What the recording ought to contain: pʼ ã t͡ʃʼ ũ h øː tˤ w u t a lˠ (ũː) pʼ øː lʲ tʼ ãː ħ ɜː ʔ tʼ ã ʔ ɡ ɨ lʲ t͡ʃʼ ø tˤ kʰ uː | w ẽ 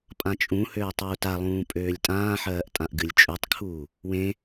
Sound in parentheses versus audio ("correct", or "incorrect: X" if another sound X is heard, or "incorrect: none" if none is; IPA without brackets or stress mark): correct